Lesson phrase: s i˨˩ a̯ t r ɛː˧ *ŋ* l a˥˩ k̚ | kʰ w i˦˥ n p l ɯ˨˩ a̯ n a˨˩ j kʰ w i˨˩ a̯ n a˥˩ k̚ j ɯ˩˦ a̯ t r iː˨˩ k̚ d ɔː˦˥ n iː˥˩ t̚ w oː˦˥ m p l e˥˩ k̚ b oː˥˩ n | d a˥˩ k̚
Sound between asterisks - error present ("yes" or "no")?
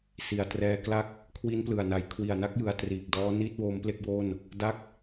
yes